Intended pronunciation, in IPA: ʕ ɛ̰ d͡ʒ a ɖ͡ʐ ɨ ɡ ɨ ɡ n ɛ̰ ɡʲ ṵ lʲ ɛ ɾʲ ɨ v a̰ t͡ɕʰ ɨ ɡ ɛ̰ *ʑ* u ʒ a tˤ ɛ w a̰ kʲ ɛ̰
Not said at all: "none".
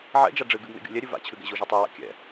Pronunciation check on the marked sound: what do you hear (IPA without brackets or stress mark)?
ʑ